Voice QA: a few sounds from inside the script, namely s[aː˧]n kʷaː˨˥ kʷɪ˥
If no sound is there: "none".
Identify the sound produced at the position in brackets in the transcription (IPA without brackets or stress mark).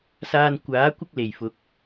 aː˧